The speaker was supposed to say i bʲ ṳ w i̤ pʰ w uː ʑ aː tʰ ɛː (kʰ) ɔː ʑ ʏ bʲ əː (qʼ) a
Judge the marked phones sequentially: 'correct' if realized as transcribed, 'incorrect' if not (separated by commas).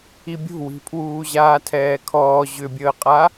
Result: correct, correct